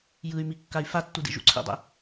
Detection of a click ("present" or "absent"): present